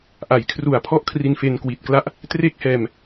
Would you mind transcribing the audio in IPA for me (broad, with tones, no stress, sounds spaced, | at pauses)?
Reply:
ʔ a˩˦ j kʰ r u˨˩ a̯ pʰ ɔ˦˥ ʔ kʰ r i˧ n f e˧ n k w i˨˩ t̚ k l a˦˥ ʔ | t r e˦˥ k̚ h ɛː˧ m